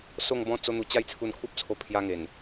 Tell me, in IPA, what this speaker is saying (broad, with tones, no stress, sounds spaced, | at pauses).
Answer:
s o˥˧ ŋ b ɔ̃˥˧ t͡s o˦ n̪ u˧ t͡ɕ a˦ j t͡sʰ u˧ n kʰ u˦ p̚ t͡sʰ o˧ pʰ j a˧ ŋ e˨˩ n